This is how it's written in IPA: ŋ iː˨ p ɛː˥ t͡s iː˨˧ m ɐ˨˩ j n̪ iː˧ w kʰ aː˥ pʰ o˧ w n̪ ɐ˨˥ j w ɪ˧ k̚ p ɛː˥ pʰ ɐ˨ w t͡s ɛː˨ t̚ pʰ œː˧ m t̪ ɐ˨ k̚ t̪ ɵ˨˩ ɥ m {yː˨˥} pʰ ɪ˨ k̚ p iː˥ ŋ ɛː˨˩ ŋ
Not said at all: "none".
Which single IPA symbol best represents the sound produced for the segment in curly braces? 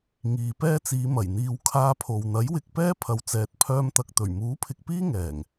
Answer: uː˨˥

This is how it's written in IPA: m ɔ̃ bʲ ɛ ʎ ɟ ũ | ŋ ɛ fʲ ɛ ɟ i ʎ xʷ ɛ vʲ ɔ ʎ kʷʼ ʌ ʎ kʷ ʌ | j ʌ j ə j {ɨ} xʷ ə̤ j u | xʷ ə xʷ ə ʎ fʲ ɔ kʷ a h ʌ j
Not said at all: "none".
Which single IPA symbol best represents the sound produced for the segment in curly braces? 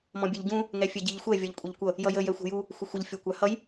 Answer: ɛ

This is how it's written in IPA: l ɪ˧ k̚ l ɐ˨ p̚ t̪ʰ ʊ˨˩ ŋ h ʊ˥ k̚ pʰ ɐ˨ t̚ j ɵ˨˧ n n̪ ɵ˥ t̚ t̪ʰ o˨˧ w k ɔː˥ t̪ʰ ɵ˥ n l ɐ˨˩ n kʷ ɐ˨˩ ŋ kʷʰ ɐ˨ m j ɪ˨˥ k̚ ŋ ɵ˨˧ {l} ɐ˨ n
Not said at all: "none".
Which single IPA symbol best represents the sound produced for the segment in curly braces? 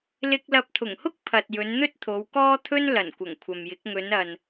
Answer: n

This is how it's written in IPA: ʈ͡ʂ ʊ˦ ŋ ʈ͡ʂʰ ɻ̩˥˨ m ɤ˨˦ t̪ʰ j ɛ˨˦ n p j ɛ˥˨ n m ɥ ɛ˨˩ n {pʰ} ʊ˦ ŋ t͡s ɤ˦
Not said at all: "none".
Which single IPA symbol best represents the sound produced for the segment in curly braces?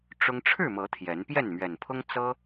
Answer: pʰ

